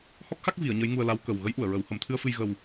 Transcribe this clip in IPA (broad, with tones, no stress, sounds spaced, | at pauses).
h ɔ˦˥ k̚ x a˦˥ k̚ v i˨˩˦ ə̯ ɲ ə˧˥ j ŋ u˧ ə̯ l a˧˥ w k ə˨˩ w ɣ ə˧˥ j ʔ u˨˩˨ ə̯ ɹ ə˨˩˦ w h ə˨˩˦ m t̪ʰ ɨ˧ ə̯ f ɨ˧ j ɣ ə˧ w